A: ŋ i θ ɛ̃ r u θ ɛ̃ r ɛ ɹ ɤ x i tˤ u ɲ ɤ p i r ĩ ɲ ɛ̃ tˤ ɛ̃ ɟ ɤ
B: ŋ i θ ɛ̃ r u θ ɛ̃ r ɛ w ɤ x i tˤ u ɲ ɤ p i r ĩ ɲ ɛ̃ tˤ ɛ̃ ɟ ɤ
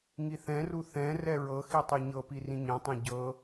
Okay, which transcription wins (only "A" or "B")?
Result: A